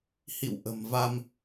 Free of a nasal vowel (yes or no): yes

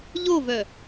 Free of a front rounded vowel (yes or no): no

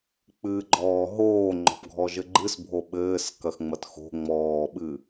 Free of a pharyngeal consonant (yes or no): yes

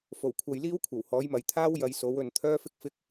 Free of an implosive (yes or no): yes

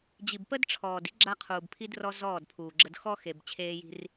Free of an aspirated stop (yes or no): no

